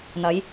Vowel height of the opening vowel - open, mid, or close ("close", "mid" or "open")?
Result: open